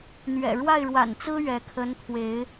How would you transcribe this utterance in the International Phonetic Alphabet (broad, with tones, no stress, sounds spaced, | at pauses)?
n̪ ɥ ɛ̰˨˩ ɻ w a˥˨ ɪ̯ ɻ w a̰˨˩ n t͡s ɹ̩˦ ɥ ɛ˨˦ kʰ ə˨˦ n t̪ʰ w e˨˦ ɪ̯